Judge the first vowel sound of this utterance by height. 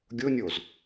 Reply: high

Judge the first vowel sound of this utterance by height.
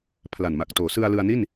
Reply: low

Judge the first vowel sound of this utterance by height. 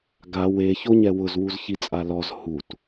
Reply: low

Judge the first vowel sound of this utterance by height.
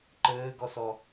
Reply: mid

